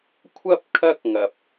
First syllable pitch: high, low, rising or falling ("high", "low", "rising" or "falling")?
high